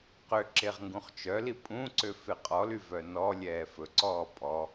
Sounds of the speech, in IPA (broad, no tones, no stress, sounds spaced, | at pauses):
q ø ǁ e ʁ ŋ ɡ ũ χ t͡ʃ œ l i pʼ ũ ǀ ø f e qʼ ɔ l y v œ n ɔ lʲ ɛː f ɵ ǀ ɔː pʼ ɔ